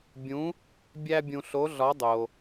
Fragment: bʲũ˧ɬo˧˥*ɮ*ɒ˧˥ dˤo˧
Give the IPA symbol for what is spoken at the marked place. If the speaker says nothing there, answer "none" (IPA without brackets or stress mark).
ɮ